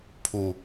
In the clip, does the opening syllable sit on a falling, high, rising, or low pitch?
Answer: low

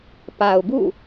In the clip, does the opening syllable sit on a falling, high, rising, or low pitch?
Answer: low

